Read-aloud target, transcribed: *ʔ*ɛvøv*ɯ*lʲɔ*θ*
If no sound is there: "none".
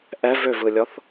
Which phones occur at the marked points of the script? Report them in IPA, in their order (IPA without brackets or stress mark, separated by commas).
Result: ʔ, ɯ, θ